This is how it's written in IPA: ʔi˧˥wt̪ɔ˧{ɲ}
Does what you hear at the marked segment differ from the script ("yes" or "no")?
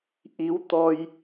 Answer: yes